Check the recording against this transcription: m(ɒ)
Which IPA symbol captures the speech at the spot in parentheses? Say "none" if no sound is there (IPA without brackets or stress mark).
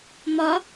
ɒ